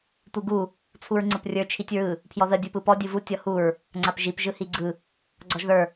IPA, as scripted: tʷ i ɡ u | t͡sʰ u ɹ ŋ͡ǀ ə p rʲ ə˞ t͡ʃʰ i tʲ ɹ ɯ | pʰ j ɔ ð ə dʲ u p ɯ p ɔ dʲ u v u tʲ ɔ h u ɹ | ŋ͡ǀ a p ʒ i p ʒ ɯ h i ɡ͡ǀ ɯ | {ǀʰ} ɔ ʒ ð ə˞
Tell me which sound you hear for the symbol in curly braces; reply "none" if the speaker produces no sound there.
ɡ͡ǀ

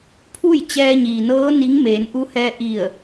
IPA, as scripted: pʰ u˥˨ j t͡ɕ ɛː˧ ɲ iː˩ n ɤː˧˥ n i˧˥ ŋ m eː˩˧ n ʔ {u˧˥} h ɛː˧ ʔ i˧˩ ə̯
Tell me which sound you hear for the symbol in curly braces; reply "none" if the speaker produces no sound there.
u˧˥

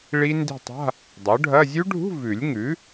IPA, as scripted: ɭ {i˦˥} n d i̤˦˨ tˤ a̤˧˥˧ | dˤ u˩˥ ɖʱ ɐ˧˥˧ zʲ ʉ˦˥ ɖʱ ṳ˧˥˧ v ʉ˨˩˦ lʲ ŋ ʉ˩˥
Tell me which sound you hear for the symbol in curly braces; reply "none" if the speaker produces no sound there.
i˦˥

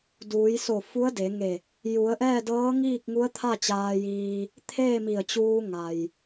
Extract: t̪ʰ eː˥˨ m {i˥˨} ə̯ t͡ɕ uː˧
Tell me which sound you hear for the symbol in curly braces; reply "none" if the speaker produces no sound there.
i˧˩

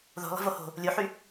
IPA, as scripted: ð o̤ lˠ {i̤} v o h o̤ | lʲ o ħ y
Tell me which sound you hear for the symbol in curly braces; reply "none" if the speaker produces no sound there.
i̤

